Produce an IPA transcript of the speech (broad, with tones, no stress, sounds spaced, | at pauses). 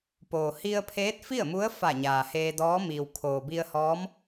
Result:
p oː˩ h i˧ ə̯ pʰ eː˧˥ t̚ f i˥˨ ə̯ m u˧˥ ə̯ f a˧˩ ɲ aː˩ h eː˧ d ɔː˧˥ m iː˩ w kʰ oː˩ b i˧ ə̯ h ɔː˧˥ m